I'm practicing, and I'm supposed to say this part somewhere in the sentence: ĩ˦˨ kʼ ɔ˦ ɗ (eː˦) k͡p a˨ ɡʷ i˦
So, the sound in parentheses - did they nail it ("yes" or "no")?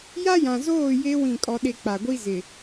no